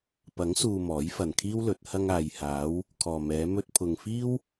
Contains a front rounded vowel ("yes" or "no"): no